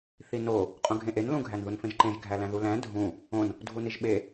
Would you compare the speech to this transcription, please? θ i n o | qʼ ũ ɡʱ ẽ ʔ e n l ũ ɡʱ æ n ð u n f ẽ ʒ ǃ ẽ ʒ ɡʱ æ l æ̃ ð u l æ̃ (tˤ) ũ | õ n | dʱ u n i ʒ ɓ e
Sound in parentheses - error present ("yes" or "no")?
yes